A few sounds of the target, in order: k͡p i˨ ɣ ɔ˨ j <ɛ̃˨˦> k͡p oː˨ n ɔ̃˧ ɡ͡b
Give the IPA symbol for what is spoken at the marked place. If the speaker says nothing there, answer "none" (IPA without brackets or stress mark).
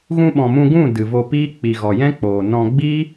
ɛ̃˦